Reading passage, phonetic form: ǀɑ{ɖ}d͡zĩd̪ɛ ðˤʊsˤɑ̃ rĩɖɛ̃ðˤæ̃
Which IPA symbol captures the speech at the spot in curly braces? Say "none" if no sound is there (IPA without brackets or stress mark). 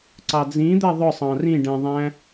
none